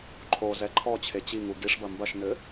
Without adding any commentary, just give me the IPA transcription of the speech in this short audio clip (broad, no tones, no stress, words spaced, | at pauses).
ǃʰozɛ ǃʰɔt͡ɕʰe t͡ɕiŋu ɡiʂbɐ mbɐʃnɘ